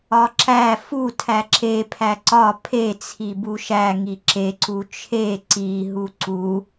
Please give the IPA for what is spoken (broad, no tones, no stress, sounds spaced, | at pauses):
ɒ ǁ æ f u tʰ æ ǁ e pʰ æ ǀ ɒ pʰ e t͡sʰ i b u ʃ æ ŋ i ǁ e ǀ u t͡ʃʰ e ǀ i ɦ u ǀ u